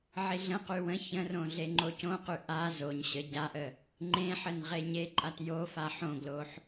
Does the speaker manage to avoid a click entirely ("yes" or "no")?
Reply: no